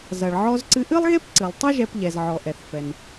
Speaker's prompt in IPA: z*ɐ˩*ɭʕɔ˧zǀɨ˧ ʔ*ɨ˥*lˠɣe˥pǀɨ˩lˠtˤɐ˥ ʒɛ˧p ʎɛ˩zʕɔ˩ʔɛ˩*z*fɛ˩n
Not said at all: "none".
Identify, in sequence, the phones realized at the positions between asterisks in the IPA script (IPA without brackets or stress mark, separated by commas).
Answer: ɐ˩, ɨ˥, θ